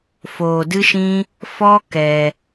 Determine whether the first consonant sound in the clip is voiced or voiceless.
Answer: voiceless